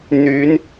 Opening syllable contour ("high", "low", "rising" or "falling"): rising